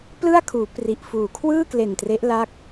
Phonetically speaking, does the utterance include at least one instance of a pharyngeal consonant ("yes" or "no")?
no